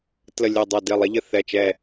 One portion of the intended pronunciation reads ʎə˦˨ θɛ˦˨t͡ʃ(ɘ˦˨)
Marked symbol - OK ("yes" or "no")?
no